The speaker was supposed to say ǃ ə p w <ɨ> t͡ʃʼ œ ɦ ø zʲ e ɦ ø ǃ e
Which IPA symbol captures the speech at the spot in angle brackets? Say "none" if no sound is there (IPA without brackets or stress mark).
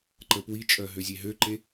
i